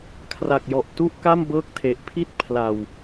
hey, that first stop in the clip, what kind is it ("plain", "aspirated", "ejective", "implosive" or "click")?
aspirated